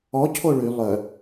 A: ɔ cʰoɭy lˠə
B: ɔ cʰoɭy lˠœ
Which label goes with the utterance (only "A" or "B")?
B